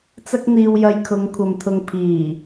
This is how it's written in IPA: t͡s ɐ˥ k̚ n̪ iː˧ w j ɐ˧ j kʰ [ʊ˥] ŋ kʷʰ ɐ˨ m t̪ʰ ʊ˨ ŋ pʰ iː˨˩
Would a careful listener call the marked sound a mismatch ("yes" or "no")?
yes